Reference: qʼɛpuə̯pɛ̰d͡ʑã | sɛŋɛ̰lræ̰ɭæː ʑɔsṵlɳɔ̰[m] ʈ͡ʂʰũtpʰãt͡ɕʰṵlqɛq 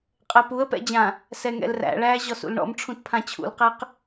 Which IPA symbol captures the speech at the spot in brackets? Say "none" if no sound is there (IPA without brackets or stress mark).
m